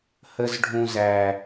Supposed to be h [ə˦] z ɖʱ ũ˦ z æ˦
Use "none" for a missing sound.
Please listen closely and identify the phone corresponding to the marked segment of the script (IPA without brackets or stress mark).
ə˦